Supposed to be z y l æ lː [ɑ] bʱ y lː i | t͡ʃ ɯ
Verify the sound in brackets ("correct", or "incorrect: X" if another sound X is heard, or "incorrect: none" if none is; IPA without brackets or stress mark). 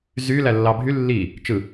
correct